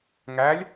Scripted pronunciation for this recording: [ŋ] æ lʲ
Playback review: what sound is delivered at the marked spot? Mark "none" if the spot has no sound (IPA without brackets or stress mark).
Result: ŋ